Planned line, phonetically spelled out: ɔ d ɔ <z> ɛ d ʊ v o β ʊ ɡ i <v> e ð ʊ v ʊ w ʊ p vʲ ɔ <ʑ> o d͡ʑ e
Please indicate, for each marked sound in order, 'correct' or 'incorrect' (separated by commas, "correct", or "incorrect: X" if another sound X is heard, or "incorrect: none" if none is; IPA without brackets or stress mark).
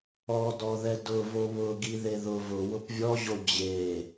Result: incorrect: ð, incorrect: ð, correct